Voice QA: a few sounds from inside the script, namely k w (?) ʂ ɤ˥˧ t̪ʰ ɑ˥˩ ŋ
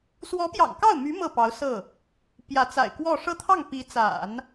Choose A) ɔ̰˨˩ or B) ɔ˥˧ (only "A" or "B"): B